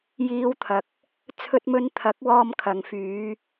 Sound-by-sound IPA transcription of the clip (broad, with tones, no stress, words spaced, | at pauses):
jiː˨˧wt̪ʰɐ˨k̚ | t͡sʰɵ˧t̚mɵ˧n t̪ʰɐ˨˥k̚ wɔː˧mkʰɐ˨ŋ fyː˨˧